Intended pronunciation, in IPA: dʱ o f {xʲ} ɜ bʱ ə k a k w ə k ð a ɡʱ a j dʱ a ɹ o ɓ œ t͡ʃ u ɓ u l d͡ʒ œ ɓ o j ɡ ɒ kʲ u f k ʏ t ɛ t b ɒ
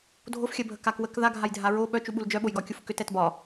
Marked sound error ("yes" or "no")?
no